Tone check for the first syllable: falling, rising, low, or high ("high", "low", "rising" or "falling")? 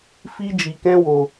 high